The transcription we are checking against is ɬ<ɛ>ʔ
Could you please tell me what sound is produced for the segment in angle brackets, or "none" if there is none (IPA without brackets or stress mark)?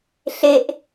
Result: e